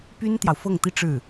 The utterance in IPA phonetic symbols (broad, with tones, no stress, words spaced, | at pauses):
py˥nt̪jɑ˨ʊ̯fɤ˥˩ŋt̪i˥ ʈ͡ʂɻ̩˥˩